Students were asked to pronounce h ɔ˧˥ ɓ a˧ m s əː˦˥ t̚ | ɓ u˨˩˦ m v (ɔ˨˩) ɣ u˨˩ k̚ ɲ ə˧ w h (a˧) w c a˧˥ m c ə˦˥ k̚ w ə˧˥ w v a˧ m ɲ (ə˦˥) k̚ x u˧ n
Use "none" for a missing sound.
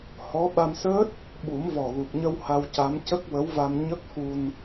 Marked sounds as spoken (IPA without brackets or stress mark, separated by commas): ɔ˨˩, a˧, ə˦˥